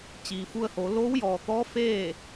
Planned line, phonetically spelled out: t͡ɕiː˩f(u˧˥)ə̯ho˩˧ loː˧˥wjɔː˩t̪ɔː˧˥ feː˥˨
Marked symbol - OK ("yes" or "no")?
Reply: no